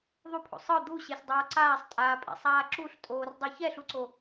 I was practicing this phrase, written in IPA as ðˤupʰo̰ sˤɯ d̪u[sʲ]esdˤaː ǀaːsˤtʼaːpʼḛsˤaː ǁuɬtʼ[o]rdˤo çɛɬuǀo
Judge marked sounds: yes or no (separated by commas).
no, no